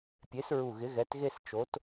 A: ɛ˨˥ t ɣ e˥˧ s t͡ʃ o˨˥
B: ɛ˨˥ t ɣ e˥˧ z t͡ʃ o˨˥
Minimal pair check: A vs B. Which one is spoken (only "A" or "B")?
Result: A